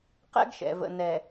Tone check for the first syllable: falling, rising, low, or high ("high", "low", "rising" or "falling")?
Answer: high